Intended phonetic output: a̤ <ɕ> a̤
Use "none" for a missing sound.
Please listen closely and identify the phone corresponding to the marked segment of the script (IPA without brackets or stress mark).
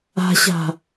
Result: ɕ